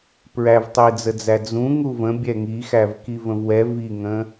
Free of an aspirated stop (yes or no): yes